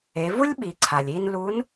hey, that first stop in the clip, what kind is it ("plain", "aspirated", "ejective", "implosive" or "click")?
implosive